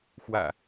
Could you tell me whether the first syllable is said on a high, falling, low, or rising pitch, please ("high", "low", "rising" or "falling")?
low